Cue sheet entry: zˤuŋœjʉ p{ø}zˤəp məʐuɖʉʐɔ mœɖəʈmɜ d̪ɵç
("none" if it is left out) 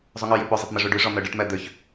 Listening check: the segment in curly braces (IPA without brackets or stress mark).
ɵ